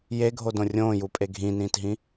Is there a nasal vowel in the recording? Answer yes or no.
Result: yes